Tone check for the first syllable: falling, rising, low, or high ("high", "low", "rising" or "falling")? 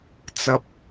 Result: low